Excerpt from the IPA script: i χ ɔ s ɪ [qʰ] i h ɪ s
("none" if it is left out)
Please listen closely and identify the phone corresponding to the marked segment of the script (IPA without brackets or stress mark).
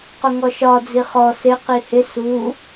q